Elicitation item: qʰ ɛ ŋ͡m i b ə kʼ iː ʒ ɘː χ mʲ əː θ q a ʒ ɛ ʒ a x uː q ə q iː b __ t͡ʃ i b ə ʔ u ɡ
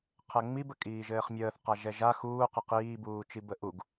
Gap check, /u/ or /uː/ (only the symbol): uː